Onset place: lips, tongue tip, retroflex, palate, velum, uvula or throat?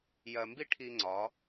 palate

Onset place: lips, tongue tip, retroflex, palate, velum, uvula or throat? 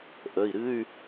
throat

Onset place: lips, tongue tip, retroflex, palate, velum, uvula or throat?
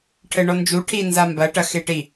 retroflex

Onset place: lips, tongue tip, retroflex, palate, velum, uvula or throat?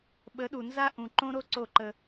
lips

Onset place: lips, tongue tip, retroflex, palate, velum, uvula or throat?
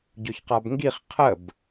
palate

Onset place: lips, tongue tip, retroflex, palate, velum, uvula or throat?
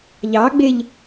palate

